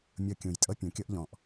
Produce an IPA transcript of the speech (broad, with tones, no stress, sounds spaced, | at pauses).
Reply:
mʲ ɤ˧ kʲ ũ˩ j tʼ ɤ˥ pʲ ũ˩ kʲ ɤ˥ ʔ ʎ ɔ̃˩ ʔ